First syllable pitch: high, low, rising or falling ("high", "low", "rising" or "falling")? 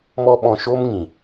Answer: high